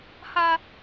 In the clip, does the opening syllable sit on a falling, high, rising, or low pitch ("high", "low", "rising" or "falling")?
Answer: high